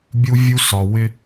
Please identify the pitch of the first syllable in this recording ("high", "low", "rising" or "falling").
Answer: high